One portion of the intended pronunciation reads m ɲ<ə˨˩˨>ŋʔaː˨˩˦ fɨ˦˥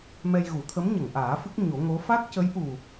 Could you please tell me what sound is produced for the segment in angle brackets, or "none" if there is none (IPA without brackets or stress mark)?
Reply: ə˨˩˨